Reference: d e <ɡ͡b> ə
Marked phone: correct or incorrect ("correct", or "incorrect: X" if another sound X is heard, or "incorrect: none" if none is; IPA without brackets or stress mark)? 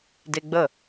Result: correct